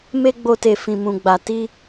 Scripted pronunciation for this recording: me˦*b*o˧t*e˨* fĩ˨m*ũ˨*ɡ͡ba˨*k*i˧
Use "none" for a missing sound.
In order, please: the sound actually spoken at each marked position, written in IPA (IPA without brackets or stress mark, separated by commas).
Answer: ɡ͡b, e˨, ũ˨, t